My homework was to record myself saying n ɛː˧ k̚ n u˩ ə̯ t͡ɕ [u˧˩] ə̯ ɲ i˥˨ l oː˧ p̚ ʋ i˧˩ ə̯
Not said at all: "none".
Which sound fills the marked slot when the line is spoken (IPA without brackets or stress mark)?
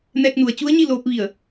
u˧˥